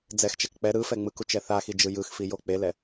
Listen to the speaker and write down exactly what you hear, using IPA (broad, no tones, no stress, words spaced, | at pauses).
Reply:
d͡zɛxt͡ʃɛk k͡pɛ ɾɯfɛ ŋ͡mɯkut͡ʃɛ θaxid͡ʒɯ jɯxfijo k͡pelɛ